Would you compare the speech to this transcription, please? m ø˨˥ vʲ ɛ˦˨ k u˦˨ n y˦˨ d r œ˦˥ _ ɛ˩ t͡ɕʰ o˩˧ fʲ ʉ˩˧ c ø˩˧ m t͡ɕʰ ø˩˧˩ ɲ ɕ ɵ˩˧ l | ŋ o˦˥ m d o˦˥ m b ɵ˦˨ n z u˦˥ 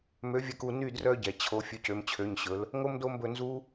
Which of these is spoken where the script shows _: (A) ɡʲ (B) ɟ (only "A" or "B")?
B